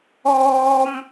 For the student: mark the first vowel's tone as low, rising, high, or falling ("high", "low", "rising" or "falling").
high